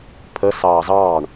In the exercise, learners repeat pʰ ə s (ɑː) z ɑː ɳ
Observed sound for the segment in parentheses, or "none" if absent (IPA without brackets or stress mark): ɑː